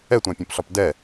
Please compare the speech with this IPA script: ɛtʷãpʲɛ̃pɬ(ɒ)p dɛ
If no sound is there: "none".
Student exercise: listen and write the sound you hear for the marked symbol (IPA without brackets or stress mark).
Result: ɒ